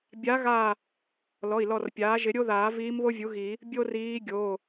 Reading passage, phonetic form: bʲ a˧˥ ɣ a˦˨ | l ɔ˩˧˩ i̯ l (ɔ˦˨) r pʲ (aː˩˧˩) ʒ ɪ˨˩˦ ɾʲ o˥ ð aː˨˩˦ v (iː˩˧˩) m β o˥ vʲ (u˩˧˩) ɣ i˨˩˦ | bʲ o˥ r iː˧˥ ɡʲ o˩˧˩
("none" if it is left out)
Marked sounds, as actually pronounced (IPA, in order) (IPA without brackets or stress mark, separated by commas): ɔ˦˨, aː˩˥, iː˧˥, u˩˥